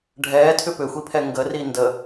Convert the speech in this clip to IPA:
ɖʱɛːtʰʏ pʏxʷipʰɛ ŋɡəri ndə

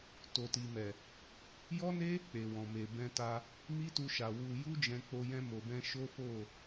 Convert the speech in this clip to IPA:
to˨ti˨mɛ˨ | jɔ˦ne˦ | k͡pe˨wɔ̃˨me˨ bɛ̃˧ta˧ | mi˦tu˧ʃa˨ wu˧ ju˦d͡ʒɛ̃˧k͡po˧ jɛ̃˧mo˨bɛ̃˧ ʃo˦fo˦˨

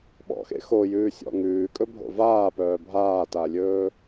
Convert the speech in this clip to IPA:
ɓɔ̰xḛ xojʉːsʲɔ̰ ŋʉːkʼɵbʱo̰ vaːpœː bʱaːtalʲɵː

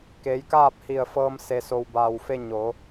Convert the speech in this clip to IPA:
keː˩˧jkaː˥˨p̚hi˧˩ə̯fɤː˧m se˩so˩wbaː˩wfe˧ ɲo˩˧

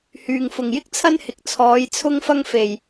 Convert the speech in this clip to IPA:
hyː˨˩ŋfʊ˨˩ŋjɪ˥k̚t͡sʰɐ˥n hɪ˨k̚t͡sʰɔː˨˥j t͡sʰʊ˥ŋfɐ˥ŋfe˨˩j

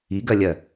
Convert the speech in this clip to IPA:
iɡɜlʲɜ

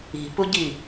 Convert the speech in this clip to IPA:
i̤puɟi

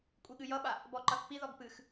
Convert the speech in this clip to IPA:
kʷʼiɠɨjʌɓa | bɔǃʌθpiðɔɡ pɨx

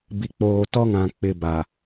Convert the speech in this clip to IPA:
bi˨k͡poː˨tɔ˦ŋã˨ k͡pɪ˨ba˨

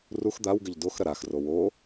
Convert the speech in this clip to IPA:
rux d̪awɡɘʎ doxɾɐ ɾaxro wo

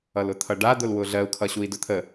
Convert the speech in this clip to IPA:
ʌlʊt̪ʰʌɖa d̪ʊlwʊɮɜu̯ kʰʌɕui̯dʊt̪ʰə

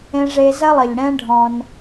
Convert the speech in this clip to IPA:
ẽ˧ʐe˧zɐ˦ lˠɘ˨ʎɽɛ̃˦ɖʱɔ̃˧n

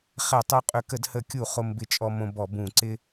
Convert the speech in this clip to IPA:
χɛ˧˩˧tˤo˧qʼø˧˩˧k ə˧˩˧dhə˧˩˧kʲu˧˩˧ χo˧mbɪ˧t͡ʃʼɔ˧mõ˧ bɔ˧˩˧bũ˧˩˧ ǀɪ˧

